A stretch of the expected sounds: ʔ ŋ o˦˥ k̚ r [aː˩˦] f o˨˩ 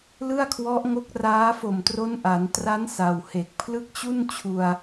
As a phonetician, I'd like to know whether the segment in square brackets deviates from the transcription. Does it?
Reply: yes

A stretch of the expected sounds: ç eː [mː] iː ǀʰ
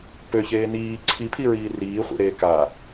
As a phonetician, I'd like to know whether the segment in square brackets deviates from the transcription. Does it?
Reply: yes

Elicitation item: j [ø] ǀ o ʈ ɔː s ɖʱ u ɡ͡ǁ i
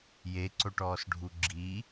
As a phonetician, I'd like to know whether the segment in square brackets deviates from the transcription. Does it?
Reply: yes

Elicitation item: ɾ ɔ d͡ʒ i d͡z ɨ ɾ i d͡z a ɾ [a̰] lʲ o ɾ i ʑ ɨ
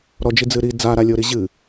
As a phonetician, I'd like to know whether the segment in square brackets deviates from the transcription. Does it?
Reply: yes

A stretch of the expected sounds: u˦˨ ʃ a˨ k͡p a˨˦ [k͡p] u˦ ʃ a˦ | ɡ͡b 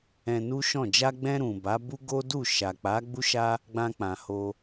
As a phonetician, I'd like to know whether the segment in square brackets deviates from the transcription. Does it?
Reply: yes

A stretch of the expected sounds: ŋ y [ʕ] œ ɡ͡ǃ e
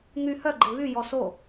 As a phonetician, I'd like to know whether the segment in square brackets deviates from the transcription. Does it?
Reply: yes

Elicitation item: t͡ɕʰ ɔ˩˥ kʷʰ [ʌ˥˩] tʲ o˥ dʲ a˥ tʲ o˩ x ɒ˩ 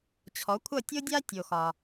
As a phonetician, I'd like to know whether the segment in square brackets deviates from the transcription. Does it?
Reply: no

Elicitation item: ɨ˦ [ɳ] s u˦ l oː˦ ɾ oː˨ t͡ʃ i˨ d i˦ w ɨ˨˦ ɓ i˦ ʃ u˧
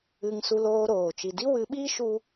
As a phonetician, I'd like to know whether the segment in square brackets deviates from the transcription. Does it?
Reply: yes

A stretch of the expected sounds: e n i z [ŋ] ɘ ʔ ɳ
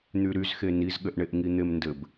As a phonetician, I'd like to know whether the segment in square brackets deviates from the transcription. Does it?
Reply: yes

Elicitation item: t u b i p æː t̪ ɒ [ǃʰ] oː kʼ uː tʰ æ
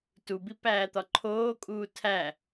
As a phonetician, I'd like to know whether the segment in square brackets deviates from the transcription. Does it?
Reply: no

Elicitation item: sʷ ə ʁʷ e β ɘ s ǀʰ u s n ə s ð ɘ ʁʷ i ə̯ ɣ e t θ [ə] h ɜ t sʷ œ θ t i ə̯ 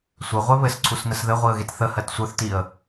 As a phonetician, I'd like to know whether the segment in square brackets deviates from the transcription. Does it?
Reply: no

